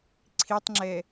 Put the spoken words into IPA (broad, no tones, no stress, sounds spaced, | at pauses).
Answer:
ǀʰ i tˤ ŋ͡ǁ ɛ